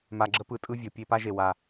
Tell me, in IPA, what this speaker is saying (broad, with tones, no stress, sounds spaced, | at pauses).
m a˨ ɡ͡ǁ ə˦ p ɯ˨˦ tʼ ɯ˦ vʲ ɤ˨ pʲ e˦ p a˦ ʒ e˨ w a˦